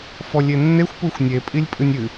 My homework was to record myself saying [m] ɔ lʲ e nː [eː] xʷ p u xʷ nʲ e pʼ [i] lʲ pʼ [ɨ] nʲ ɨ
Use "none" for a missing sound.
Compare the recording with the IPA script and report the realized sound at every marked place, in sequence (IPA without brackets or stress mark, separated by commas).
f, e, i, ɨ